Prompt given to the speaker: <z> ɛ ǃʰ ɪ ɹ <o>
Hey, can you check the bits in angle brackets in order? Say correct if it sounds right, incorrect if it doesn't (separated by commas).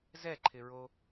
correct, correct